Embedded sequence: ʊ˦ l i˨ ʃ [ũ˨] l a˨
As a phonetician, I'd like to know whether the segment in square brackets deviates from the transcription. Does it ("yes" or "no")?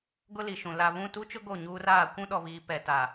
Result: no